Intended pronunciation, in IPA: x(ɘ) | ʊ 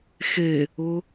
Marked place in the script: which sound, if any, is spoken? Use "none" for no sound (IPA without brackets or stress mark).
e